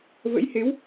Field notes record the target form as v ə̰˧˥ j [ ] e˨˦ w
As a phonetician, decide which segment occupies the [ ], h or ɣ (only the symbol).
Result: h